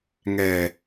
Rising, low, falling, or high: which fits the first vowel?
low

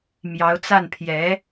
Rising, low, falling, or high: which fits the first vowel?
rising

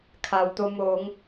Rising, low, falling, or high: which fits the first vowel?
low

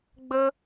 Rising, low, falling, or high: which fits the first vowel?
high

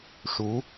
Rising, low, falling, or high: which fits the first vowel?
rising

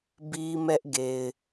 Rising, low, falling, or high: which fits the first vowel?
high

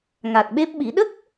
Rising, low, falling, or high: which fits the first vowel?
low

